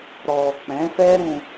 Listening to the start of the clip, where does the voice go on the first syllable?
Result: low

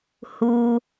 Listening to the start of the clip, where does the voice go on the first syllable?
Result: low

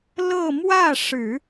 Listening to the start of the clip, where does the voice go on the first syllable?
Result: falling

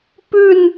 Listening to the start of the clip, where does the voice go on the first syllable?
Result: falling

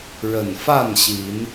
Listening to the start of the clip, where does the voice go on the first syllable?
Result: low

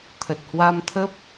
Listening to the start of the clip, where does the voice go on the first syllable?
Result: low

